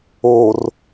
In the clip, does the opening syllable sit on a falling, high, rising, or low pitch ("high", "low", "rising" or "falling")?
low